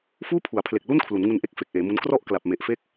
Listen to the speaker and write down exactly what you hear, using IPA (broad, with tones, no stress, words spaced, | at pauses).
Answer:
fuː˥˩pʰu˩˦a̯pʰle˨˩k̚ lu˥˩n kʰlu˩˦nŋu˧nʔe˥˩k̚ fe˨˩k̚ʔeː˩˦mu˦˥n krɔ˥˩ʔ kla˨˩p̚me˨˩ʔfe˥˩k̚